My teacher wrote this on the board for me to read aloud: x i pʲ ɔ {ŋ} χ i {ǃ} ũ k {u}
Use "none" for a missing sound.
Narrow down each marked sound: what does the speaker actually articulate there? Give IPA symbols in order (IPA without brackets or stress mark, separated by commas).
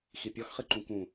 x, ǃ, ũ